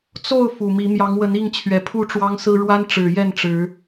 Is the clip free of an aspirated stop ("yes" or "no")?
no